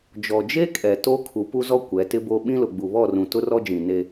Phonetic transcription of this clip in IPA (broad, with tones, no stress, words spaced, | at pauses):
d͡ʒɔ˨d͡ʒe˦kʼɛ˨ to˦ kʰu˨˦pu˦zɔ˦ kʷɛ˨˦tɪ˦bo˦ ɓĩ˦lʊ˨ ɡ͡bu˨βɔ˦˨rũ˨ tʊ˦rɔ˦d͡ʒĩ˨ ne˦